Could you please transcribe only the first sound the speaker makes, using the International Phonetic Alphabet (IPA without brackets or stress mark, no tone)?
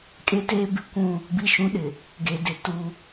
kʼ